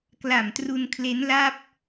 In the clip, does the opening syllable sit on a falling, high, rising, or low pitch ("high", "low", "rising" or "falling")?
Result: low